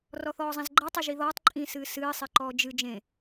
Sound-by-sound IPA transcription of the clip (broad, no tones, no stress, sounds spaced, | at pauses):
r ɔ θ ɔː zˤ ĩ z ɡ͡ǃ ɐ tˤ e ʒ i ð ɔː tˤ ǃʼ ĩ s ɨː s ɨː sˤ e ǃ ɔː d͡ʒ ɨ d͡ʒ ẽ